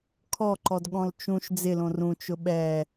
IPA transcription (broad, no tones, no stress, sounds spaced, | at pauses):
kʰ ɔ ǃ ɔ d ɠ ɔ̃ l t͡ʃ ũ ʃ d͡z ɪ l õ r ũ t͡ʃ ʊ ɓ ɛ